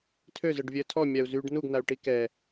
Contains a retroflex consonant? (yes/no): yes